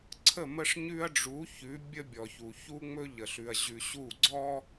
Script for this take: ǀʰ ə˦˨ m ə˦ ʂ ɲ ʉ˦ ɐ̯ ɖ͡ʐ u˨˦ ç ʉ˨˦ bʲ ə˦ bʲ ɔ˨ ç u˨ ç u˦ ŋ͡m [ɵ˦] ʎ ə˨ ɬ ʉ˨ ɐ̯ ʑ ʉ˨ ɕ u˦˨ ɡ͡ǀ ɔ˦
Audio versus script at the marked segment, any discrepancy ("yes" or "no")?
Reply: no